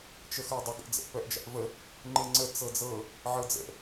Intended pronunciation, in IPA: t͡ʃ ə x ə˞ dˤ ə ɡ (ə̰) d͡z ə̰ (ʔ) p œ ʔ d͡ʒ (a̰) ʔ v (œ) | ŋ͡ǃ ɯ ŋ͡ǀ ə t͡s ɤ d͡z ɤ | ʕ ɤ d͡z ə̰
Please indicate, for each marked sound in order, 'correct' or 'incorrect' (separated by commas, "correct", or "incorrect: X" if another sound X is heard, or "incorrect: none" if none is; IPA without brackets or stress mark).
correct, correct, correct, incorrect: ə